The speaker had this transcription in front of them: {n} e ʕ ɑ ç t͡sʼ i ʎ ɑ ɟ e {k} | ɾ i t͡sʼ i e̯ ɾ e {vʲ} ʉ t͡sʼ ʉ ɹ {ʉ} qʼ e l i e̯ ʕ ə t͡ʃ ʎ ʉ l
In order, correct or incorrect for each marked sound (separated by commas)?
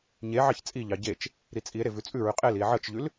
incorrect, incorrect, incorrect, correct